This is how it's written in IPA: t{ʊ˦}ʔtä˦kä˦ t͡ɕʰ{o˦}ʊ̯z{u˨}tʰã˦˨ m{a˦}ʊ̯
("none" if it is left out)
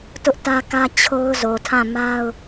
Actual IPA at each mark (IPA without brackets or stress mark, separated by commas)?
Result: ʊ˦, o˦, o˨, a˦